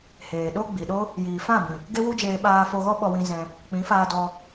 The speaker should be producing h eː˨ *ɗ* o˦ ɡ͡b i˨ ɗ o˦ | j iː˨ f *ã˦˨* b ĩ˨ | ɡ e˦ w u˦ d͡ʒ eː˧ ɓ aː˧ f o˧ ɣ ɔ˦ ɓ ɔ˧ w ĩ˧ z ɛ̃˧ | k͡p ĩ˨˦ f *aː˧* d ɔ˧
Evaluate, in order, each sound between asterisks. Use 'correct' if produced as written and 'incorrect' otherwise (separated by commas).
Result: correct, correct, correct